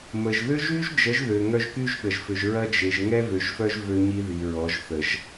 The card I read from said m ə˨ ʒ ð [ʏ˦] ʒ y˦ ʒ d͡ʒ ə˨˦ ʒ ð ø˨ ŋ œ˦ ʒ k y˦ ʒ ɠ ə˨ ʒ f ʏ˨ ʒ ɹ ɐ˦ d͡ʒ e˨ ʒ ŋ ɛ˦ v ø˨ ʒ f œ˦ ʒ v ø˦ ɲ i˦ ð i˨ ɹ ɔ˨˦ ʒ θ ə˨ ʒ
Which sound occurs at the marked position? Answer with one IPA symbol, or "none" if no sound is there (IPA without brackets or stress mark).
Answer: ʏ˦